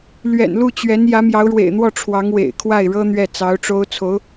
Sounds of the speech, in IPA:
l ɥ ɛ̰˨˩ n l u˥˩ t͡ɕ ɥ ɛ˧˥ n j ä˧˥ m j ɑ˧˥ ʊ̯ ɻ w ḛ˨˩ ɪ̯ n̪ w ɔ˥˩ ʈ͡ʂʰ w ɑ˧˥ ŋ w ḛ˨˩ ɪ̯ kʰ w a˥˩ ɪ̯ ɻ ɤ˥ n̪ ɥ ɛ˥˩ t͡s ɑ˧˥ ʊ̯ ʈ͡ʂ o˥ ʊ̯ t͡sʰ o˧˥ ʊ̯

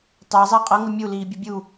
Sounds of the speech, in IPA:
tˤ æ zˤ æ qʼ ʌ ŋ ə mʲ u l iː bʲ ʌ bʲ u

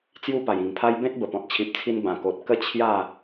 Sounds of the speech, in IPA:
t͡s j u˧ p a˨˩ j ĩ˨˩ ŋ pʰ a˦ j b ẽ˦ t̚ b ə˨˩ p ɔ̃˨ t̚ t͡ɕʰ i˨ p̚ t͡sʰ i˧ n b ã˨˩ k o˨ t̚ k ə˦ t͡ɕʰ j a˥˧

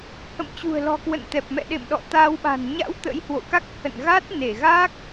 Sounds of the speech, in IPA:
h ə̰˧˨ m t͡ɕ ṳ˨˩ ə̯ l ɔ̤˨˩ k w ə̰˧˨ n t̪ ɛ˨˩ p̚ m ɛ̰˧˨ ɗ ḛ˧˨ m ɗ ɔ̰˧˨ t̪ a˧ w ɓ a̤˨˩ n ɲ a̰˧˥ w t̪ ə̰˧˥ j h w o̰˧˨ k a˦˥ k̚ h ə̰˧˨ n ɣ a˦˥ t̚ n e˧˩ ɣ a˦˥ k̚

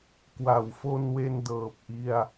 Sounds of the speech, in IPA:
k w a˩˦ w f o˧ n w e˧ n d ɤː˨˩ p̚ ʔ i˧ a̯

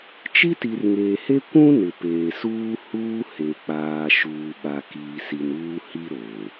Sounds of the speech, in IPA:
t͡ʃ i˦ t i˨ r ŋ eː˨ h e˦ kʷ ũ˦ n ɪ˨ p eː˨ s uː˦ h uː˦ h e˨ k͡p aː˨ ʃ uː˨ ɓ a˨ k iː˨ s i˨ n uː˦ h i˦ ɾ o˨

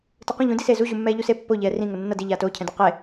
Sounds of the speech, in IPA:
t ɯ q ũ ʎ ũ d i s e z u ʑ u mː ɛː ʎ u s e pː o ʎ ɛː r ĩ ŋ o nː ʌ d i ʎ aː t oː cʰ ɛ̃ d a q e

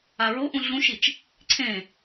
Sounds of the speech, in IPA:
a ɹ o ʔ ũ ɮ ũ ʃ i t͡ʃ | ǀʰ ẽ

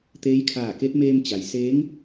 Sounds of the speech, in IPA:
t̪ eː˧˥ j kʰ aː˧˩ k e˧˥ t̚ m eː˧ m t͡ɕ a˩ j s eː˧˥ ŋ

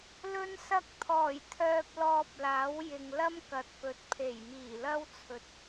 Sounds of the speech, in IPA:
l ɵ˧ n s ɐ˧ k̚ t̪ʰ ɔː˨˩ j t̪ʰ œː˧ p̚ l ɔː˧ p̚ l aː˨˥ w j ɪ˨ ŋ l ɐ˥ m k ɐ˨˥ t̚ p ɵ˨˥ t̚ pʰ e˨˩ j m iː˨˩ l ɐ˥ w t͡sʰ ɵ˨ t̚

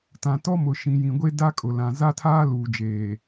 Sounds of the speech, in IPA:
t ã˨ t ɔ˦ m ʊ˨ ʃ ĩ˨ j ĩ˨ ɡʷ e˦ d a˦ kʼ ʊ˨ l ã˨ z a˦ tʰ aː˦ l uː˨ d͡ʒ eː˨

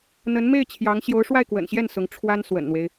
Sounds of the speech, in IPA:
n̪ ə˧˥ n m e˥˩ ɪ̯ t͡ɕʰ j ɑ˧˥ ŋ ɕ j o˧˥ ʊ̯ ʂ w a˥˩ ɪ̯ k w ə̰˨˩ n ɕ j ɛ˥˩ n s ʊ˧˥ ŋ ʈ͡ʂʰ w a˥ n s w ə̰˨˩ n n̪ w e˦ ɪ̯

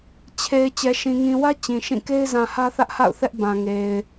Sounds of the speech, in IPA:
t͡ɕʰ e˨ ɪ̯ t͡ɕ ɛ˨ ʃ ĩ˨ ŋ ĩ˨ w ä˦ t͡ɕ ĩ˨ ʃ ĩ˦˨ k e˦ ɪ̯ z ã˨ h ä˦ θ ä˦ ʔ h a̰˦˨ ʊ̯ θ ɛ˦ ʔ b ã˨ ŋ e˨ ɪ̯

